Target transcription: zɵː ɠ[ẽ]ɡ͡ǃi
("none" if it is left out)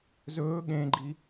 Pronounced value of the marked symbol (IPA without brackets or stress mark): ẽ